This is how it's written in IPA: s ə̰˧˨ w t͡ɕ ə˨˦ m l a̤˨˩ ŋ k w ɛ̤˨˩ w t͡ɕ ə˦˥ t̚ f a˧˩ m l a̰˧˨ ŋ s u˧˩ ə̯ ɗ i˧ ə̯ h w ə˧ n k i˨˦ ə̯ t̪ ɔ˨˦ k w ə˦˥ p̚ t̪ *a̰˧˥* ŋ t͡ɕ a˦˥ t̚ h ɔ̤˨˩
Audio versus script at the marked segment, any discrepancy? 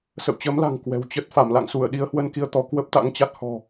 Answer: no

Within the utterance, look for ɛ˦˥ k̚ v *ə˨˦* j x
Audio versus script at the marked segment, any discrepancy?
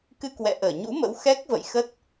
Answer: yes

